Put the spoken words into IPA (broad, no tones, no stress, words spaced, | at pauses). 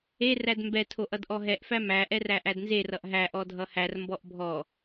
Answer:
e rædmbɛ tʰoʔʌdʔɔɦɛʔ fæmæ ʔɛræʔædnze rʌʔɦæ ʔɔdʱʌhær mbɔʔbʱɔ